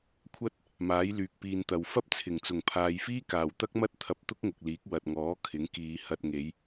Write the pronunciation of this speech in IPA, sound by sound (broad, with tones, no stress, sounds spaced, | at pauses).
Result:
kʷʰ ɐ˥ t̚ | m aː˨˥ j l yː˨ k̚ p iː˨ n t̪ ɐ˨ w f ɐ˥ p̚ t͡sʰ ɪ˨˩ ŋ t͡s ʊ˨˩ ŋ pʰ aː˨˧ j f iː˥ k aː˨˩ w t̪ ɐ˥ k̚ m ɐ˥ t̚ t̪ʰ ɐ˧ p̚ t̪ ʊ˥ k̚ ŋ ʊ˨ k̚ l iː˨˥ k̚ w ɐ˨ t̚ ŋ ɔː˨˥ kʰ ɪ˨˥ ŋ k iː˨˧ h ɐ˧ t̚ ŋ e˨˧ j